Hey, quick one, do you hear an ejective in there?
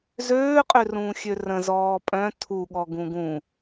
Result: yes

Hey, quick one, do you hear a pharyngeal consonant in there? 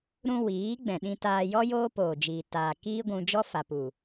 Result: no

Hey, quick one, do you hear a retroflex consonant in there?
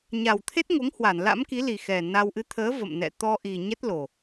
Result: no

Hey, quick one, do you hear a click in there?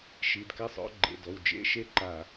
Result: yes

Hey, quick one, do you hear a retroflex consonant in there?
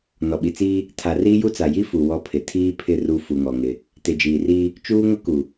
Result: no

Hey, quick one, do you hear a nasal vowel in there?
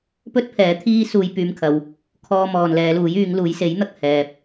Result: no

